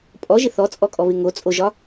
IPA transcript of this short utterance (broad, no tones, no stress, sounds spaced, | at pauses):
pʼ ɔ ʒ ɪ θ ɔ t͡sʼ ɔ kʼ ɔ β ɪ ŋ o t͡sʼ o ʒ ɒ